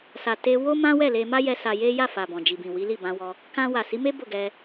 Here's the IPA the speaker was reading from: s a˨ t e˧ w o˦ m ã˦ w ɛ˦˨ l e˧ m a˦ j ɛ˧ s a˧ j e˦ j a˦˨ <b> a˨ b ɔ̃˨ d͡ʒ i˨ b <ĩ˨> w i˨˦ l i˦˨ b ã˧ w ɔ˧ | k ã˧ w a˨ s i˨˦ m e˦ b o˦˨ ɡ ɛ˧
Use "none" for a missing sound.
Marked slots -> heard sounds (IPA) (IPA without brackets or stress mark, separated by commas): f, ĩ˨